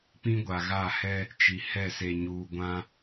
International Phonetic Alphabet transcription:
p ĩ˦ ɡʷ a˨ ɣ a˦˨ h ɛ˦ | t͡ʃ i˨ h ɛ˦˨ s e˨ ɲ uː˨ ɡʷ ã˦

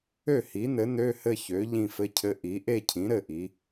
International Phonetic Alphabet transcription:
ø˥˩ h i˩˥ n ɘ˩˥ n ø˧˥˧ h ɘ˥˧ ç ø˩˥ ʎ ĩ˥˧ f ɘ˧˥˧ cʰ ɘ˧˥˧ ʔ i˩˥ ʔ e˥˧ cʰ ĩ˩˥ ɾ ɘ˥˩ ʔ i˩˧

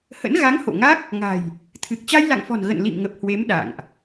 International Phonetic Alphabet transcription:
h ə̰˧˥ n ɣ a˨˦ ŋ h o̰˧˨ ŋ a˦˥ k̚ | ŋ a̤˨˩ j | t̪ʰ ɨ˨˩ k̚ t͡ɕ a˧ j l a̰˧˨ ŋ f ɔ̤˨˩ n ɣ ə̰˧˨ n l ḭ˧˨ m ŋ ə˨˩ p̚ h w e˨˦ m ɗ a̰˧˨ ŋ ʔ

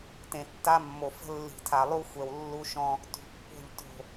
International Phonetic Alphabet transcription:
t ẽ˨ tː a˦ mː o˨ f ə̤˦ lː i̤˨ tʰ a˨ lˠ u˦ xʷ ɛ˨ w lː u˦ ʃ ɔ̃˦ | t ṳ˨ pː o̤˦˨ ʎ t o̤˦˨

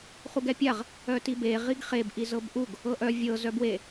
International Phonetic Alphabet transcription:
χ u ɡ ɛ pʲ a ʁ | œ t i b e ʁ i ɡ χ e b ʔ i z ɤ b ʔ u ɡ | ɤ ʔ œ vʲ ɤ z œ b w e

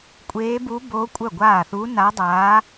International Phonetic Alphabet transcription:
kʷʼ eː˧˥ b u˧˥ b o˧˥ kʷʼ œ˥˩ ɡʷ aː˥˩ θ u˧˥ n a˧˥ dˤ aː˧˥

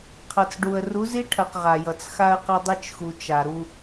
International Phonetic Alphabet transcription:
qʰ ʌ˨ t͡s ɖ u˨ ə̯ r u˨˦ z i˦ ʈʰ ɐ˨ q ʁ a˨ j ʌ˨ t͡s x a˦ ə̯ q ɐ˦ dˤ e˦ t͡ʃ x u˨ t͡ʃ a˨ ɾ u˦

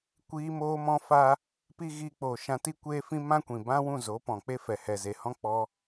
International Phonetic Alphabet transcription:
kʷ iː˧ m oː˧ m ɔ̃˦ f a˦ | p i˦ ɣ iː˧ k͡p oː˨ ʃ ã˧ t i˦ kʷ eː˧ f ĩ˧ m ã˦ kʷ ĩ˨ b ã˦ w ũ˦˨ z o˨˦ p ɔ̃˨ k͡p e˦ f ɛ˨ h ɛ˨ z e˨ h ɔ̃˦ k͡p ɔ˧

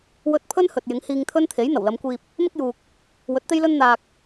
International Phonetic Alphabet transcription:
w ɵ˧ t̚ pʰ ɵ˥ n h ɵ˨ t̚ j ɪ˨˥ ŋ h iː˧ ŋ t̪ʰ ɵ˥ n t̪ʰ e˨˥ j n̪ ɐ˨˩ w l ɐ˨˧ m kʷ iː˧ p̚ | m ɪ˥ k̚ j uː˨ k̚ | w ɵ˨˥ t̚ t̪ e˥ j l ɵ˥ n n̪ aː˧ k̚

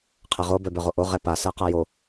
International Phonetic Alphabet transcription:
qʰ ɛ ʁ o b œ b œ ʁ o ʔ o ʁ ɛ p a s ɜ q a j o

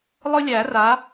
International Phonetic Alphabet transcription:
lˠ ɯ˦ lʲ æ˨˩˦ r a˩˥

